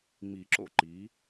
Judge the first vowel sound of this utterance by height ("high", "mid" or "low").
high